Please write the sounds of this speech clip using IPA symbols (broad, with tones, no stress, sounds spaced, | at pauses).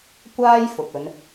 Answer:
kʷ aː˥ j f ʊ˨ k̚ ɵ˨˧ n